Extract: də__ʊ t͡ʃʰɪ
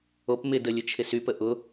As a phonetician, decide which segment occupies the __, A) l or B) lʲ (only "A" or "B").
B